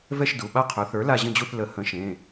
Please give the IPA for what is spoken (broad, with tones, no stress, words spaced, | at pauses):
vɛ˦˨ʃdu˩˧˩ ɓa˦˨qʰœ˩˥θə˞˩˥ la˦˨ʑə̃˦˨d͡ʑu˦˨θ lə˨˩˦ hə̃˩˥ʃẽ˩˧˩